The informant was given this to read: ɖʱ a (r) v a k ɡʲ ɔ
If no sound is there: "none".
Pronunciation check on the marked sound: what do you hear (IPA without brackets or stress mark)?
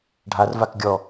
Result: r